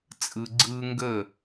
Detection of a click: present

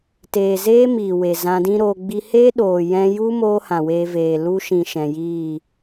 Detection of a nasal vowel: present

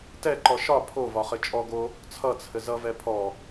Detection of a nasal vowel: absent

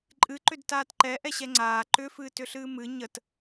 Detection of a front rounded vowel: present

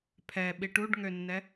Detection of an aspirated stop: present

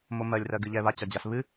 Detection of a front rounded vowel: absent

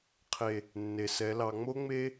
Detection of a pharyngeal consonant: absent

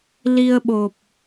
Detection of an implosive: present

